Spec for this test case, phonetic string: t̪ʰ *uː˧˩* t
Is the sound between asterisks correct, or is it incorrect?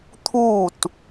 correct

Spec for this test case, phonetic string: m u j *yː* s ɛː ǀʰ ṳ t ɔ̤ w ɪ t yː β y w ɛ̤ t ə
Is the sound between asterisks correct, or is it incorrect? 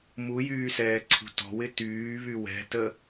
correct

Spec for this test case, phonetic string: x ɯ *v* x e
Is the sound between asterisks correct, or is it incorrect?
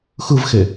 correct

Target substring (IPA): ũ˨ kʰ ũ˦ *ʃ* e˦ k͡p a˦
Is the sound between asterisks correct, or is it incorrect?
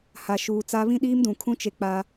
incorrect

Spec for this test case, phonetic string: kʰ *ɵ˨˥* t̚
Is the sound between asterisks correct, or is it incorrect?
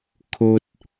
incorrect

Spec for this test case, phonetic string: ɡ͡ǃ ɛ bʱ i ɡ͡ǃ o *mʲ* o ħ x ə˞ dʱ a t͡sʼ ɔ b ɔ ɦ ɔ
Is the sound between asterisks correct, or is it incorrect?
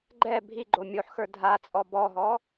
correct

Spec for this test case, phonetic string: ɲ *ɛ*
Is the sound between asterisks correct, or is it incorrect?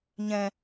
incorrect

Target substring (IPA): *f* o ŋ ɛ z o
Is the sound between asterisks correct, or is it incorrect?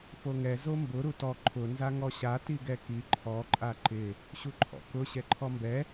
correct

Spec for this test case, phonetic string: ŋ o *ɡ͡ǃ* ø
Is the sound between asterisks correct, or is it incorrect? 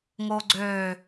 incorrect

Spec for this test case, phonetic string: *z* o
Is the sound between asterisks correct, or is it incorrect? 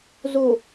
correct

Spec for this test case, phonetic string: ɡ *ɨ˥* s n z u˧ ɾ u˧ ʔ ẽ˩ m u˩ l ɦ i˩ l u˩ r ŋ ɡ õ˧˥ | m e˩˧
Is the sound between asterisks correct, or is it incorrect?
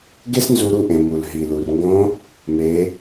incorrect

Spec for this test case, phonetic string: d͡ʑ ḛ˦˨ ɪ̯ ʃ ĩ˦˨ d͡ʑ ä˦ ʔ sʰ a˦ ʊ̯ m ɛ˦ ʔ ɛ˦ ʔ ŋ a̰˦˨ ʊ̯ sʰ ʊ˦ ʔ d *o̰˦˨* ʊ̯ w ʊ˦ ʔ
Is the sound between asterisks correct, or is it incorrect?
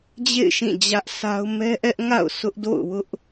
correct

